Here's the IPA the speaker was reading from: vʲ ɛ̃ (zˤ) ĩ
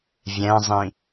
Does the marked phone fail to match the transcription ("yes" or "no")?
no